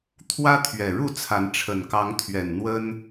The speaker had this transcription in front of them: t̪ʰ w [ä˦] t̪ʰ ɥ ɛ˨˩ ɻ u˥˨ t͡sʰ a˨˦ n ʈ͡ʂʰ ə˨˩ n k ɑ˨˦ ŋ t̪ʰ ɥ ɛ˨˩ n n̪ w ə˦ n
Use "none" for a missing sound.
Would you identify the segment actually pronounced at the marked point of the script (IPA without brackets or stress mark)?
ä˦